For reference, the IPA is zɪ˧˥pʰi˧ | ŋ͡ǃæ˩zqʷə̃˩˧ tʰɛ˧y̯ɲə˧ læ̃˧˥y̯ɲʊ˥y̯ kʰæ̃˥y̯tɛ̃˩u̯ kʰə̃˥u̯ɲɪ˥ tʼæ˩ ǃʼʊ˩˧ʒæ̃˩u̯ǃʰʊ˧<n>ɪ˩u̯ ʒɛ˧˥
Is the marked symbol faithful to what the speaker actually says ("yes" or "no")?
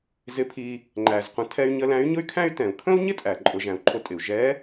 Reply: no